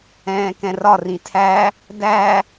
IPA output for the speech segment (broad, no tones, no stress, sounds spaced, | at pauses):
ɛ̃ː k ɛ̃ r ɒ r ĩ tʰ æ | d æ